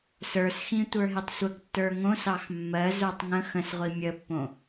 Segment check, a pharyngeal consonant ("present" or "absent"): absent